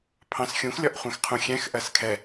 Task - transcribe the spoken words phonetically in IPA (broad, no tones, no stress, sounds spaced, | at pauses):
pʰ ɑ̃ s xʲ ũ x lʲ ɒ ʔ χʷ ɛ̃ x qʰ ũ xʲ ɛ̃ x ʔ ɜ s kʰ ɛ